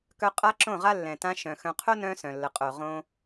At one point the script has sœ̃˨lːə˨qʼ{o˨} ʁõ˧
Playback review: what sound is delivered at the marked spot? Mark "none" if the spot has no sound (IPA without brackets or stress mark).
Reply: o˨